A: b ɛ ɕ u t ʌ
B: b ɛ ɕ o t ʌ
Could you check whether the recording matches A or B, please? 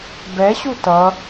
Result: A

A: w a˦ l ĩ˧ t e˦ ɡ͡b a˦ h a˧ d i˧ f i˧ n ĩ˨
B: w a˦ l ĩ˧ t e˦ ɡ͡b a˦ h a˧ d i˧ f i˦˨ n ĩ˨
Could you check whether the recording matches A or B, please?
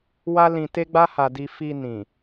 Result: A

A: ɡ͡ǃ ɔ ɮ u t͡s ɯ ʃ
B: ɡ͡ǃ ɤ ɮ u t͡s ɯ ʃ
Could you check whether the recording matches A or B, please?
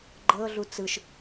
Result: B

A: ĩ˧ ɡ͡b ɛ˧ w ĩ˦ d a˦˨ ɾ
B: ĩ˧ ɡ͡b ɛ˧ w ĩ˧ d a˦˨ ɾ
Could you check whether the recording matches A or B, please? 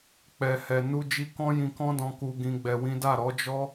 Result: A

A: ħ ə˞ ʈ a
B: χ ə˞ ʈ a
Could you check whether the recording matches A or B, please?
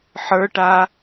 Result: A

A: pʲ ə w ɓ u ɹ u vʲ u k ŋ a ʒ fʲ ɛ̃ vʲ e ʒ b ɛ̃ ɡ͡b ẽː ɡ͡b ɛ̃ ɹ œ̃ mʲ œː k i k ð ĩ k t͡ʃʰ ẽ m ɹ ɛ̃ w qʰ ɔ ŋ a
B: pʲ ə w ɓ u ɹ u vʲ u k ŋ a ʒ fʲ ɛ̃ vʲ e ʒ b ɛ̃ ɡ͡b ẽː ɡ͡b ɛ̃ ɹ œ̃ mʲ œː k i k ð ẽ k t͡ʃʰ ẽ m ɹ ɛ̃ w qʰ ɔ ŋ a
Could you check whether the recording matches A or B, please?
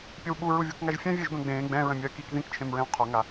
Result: A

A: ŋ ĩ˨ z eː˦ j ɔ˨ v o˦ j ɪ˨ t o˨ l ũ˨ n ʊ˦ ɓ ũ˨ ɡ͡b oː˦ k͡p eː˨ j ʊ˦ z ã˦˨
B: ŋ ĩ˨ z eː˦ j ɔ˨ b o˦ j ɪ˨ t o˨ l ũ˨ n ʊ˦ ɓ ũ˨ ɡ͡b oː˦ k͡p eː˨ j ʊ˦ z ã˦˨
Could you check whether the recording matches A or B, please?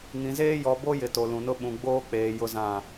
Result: B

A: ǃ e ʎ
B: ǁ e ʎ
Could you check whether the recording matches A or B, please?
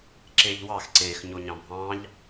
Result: B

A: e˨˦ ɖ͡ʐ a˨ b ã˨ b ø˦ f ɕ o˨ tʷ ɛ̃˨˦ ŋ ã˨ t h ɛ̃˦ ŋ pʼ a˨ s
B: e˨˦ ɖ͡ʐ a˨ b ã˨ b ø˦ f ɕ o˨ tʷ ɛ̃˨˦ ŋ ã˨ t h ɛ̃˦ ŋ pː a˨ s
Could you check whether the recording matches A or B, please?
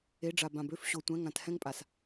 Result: A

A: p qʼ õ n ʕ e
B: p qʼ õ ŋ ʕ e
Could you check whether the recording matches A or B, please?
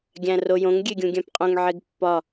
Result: B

